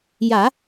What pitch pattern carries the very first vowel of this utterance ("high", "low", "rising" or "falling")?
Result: low